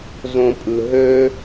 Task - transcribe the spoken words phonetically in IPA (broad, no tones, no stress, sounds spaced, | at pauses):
z õ pʼ ɯ ɦ ø